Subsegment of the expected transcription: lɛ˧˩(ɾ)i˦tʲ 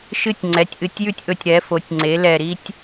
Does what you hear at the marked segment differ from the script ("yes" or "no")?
no